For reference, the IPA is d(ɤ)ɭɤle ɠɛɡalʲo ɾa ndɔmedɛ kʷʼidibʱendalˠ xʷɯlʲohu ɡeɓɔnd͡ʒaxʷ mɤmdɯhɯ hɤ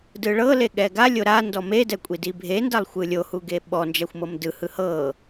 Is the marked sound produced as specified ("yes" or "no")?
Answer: no